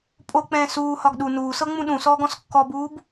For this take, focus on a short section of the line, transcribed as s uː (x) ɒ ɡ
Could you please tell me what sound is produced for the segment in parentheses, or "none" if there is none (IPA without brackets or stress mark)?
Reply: h